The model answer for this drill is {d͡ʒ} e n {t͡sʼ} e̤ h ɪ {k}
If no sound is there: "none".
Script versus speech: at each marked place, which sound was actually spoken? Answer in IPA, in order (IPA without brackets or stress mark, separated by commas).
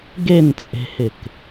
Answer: ɡ, t͡sʼ, k